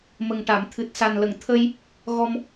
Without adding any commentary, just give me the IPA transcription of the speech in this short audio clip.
mə˨˩ŋʈa˨˩˨m t̪ʰɨ˨˩t̚sa˨˩nlə˨˩˨ŋt̪ʰə˧j | ɣɔ˧m

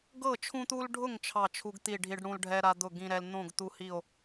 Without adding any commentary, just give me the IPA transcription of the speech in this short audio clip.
ɡɤ˥˨t͡ʃʰũ˦t̪u˦lɖʱʊ˥˨ŋ t͡ʃʰɑ˥˨t͡ʃʰu˦ɡt̪i˥˨ɖʱi˦ɖ ɽũ˦lɖʱɛ˦ ɾa˦d̪ʊ˥˨ ɡĩ˦ɾɛ˦l n̪õ˥˨ɡt̪u˦hi˥˨o̯

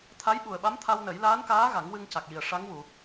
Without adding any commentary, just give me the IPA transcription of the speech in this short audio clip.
t̪ʰa˧˥jɓu˨˩ə̯ɓa˧˥m t̪ʰa˧wnə˨˩˦j laː˧˥nkaː˧˥ ɣa˨˩˦ŋwɨ˧ŋca˨˩k̚ji˨˩ə̯ ʂa˧˥ŋwu˨˩˨

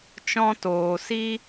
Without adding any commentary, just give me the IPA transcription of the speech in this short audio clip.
t͡ʃɔ̃˦toː˨ si˦

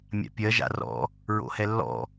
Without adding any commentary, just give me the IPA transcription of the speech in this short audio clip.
mʲa̰pʲɜ ʒa̰rɔ̰ | ɹo̰hɛlːɔ̰

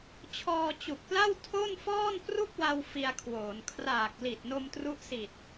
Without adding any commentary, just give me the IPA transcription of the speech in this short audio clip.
t͡ɕʰɔː˧t͡ɕu˨˩k̚pla˥˩w tʰo˥˩nfɔː˥˩n pru˥˩k̚wa˧w fi˧a̯kʰwoː˩˦n kʰraː˨˩k̚ li˨˩t̚no˧mtru˦˥ʔsi˨˩t̚

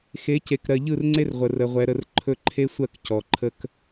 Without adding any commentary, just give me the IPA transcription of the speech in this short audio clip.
xe˨˦ce˨kɾɜ˨ ʎɯ˦˨rŋ͡ǀe˦r ʁʷə˨rə˨ ʁʷɛ˨ɾə˦˨r ǃʰɵ˦ ǃʰe˦sʷɜ˦˨k cɔ˨ǃʰə˦k

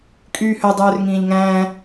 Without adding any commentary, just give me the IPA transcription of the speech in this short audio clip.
kʼyːhø dˤøːrŋĩːʎŋæ̃ː

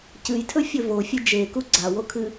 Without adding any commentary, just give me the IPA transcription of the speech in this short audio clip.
cɨjtʰɵfʲɵ vofʲɨ d͡ʒeku ɡ͡ǀawokʰɨ

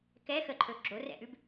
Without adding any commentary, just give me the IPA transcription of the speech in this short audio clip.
kɛxəǃʰɵ ɡ͡ǁorɛ̰ʔʉb

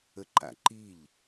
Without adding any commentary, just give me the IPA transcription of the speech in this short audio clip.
əǃa̰ǃiʎ

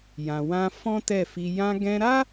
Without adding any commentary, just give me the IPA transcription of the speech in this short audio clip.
jã˨wã˧ fɔ̃˦tɛ˦˨fi˧ jã˧ɡɛ̃˧ɾa˦

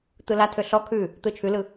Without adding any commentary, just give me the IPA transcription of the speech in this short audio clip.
t̪ɯlatʰø ɬɔ kʰʉ | t̪ɯt͡ʃʰʉlɯ

